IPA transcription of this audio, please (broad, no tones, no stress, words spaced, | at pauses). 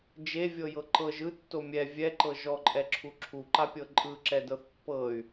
d͡ʒevʲɤjɤ ǃɤʒ ɯtːo mʲɛ vʲɛǃɤ ʒɔǃʼɛǁʰu ǁʰuǃapʲɤ ǃʼɯǁɛdɤθ pːɤy̯